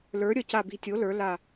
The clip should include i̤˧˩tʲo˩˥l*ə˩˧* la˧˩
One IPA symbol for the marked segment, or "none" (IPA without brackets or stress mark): ə˞˩˧